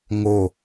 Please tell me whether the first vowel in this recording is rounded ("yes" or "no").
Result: yes